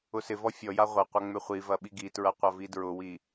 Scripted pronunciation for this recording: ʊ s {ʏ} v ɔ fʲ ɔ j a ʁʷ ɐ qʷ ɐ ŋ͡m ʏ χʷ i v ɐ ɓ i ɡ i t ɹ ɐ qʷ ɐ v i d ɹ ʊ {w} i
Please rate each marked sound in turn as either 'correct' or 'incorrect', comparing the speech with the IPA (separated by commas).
incorrect, correct